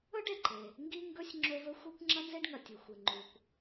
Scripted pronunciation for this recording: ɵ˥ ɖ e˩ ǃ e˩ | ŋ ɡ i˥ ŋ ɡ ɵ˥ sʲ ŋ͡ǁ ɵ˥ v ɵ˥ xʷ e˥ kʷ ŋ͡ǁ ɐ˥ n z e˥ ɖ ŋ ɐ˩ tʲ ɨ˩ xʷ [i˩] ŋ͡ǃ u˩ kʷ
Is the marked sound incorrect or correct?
incorrect